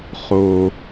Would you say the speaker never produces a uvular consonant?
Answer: no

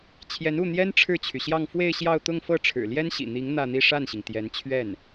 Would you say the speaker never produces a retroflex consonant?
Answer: no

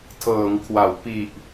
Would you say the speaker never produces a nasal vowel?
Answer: yes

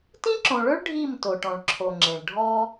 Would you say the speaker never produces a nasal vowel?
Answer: no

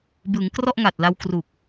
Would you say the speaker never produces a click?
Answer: yes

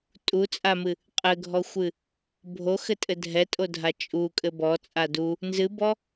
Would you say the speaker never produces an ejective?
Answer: no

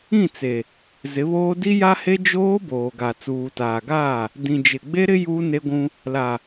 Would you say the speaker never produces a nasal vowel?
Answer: no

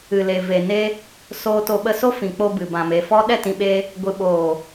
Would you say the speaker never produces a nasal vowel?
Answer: no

